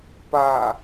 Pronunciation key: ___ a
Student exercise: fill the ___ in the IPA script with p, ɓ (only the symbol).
p